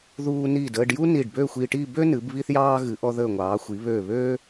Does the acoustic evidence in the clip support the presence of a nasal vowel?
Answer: no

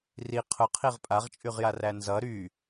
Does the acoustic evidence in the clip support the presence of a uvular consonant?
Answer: yes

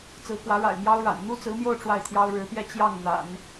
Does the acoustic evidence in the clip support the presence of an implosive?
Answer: no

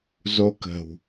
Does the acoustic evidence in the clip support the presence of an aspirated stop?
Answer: no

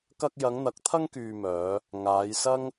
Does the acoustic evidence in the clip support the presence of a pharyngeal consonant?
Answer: no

